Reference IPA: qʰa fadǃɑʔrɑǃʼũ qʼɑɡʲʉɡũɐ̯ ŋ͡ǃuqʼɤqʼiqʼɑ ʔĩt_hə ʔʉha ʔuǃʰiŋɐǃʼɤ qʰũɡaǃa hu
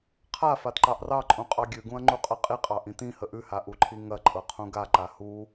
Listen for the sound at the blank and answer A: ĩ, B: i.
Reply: A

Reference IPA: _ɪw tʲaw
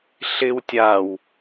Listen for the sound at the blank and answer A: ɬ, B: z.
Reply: A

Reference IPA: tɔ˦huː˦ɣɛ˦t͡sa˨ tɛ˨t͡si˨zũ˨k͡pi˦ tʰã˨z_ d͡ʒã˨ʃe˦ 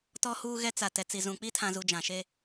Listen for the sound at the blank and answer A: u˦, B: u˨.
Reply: B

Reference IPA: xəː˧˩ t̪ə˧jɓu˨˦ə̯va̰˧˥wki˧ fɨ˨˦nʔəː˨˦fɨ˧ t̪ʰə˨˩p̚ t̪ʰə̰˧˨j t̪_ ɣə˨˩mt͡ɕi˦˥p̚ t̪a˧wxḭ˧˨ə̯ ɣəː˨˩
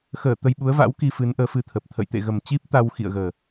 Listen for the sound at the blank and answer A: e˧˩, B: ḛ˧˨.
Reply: B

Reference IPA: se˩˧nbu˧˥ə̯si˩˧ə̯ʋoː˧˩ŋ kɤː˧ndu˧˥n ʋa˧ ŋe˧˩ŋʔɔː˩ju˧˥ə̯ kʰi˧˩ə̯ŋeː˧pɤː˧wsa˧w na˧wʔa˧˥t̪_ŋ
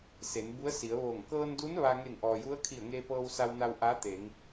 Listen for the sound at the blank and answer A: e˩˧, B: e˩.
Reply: A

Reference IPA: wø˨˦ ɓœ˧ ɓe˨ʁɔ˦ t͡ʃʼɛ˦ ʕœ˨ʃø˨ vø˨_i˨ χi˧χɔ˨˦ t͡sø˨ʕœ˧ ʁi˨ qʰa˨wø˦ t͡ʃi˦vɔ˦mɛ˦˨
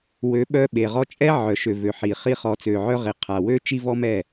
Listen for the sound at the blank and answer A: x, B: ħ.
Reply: B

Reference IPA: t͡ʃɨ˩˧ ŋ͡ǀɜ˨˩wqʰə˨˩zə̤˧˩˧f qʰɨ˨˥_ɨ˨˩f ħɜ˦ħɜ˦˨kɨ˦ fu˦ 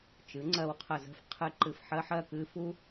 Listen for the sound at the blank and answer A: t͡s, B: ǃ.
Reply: B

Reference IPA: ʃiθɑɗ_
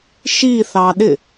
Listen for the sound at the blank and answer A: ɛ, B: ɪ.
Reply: B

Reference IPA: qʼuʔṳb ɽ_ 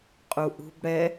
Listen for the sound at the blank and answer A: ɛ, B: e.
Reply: A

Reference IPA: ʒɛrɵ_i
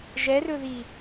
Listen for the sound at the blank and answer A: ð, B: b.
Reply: A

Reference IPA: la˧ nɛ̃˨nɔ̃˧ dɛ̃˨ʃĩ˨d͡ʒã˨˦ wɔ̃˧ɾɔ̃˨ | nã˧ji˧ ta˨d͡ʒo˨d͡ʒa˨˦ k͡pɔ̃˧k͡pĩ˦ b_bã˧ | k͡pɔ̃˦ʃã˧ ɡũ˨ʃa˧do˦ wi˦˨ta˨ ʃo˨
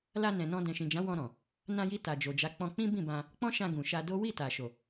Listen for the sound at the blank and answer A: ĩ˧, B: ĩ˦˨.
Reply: B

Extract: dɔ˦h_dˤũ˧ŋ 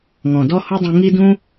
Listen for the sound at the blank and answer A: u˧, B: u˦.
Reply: B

